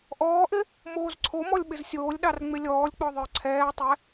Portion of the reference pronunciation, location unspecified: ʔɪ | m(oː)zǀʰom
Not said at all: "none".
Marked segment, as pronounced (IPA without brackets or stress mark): oː